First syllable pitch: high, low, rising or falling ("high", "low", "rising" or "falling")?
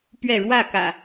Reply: falling